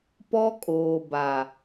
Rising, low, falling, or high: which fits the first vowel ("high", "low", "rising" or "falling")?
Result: high